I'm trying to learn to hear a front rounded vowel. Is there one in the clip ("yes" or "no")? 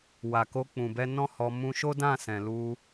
no